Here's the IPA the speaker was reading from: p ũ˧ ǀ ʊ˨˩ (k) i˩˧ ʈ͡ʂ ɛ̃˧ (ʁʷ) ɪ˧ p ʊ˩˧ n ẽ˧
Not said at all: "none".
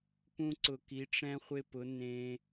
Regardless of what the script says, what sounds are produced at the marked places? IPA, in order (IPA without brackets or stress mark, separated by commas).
k, χʷ